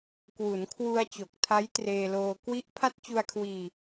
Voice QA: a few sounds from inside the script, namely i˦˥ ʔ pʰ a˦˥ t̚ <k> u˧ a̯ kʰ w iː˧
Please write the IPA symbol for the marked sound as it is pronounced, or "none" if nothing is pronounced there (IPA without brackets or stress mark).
t͡ɕ